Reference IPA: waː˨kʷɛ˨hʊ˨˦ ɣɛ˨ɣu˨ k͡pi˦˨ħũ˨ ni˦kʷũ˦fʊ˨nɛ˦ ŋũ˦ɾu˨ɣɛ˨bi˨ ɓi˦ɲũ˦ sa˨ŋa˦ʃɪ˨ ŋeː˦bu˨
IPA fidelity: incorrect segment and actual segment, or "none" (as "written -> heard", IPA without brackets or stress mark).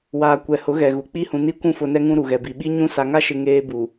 ħ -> h